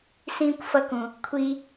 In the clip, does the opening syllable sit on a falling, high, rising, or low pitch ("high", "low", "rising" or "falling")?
high